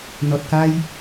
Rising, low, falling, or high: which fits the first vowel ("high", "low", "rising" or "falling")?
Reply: low